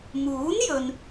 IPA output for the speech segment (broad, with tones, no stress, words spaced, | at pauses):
muː˨˥njɵ˨n